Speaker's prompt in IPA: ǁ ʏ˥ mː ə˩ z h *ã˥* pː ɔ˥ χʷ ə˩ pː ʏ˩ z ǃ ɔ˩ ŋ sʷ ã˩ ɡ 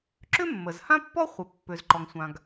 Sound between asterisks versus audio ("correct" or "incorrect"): correct